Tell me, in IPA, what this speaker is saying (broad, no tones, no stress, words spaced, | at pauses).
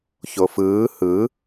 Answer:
çofɯː hɯ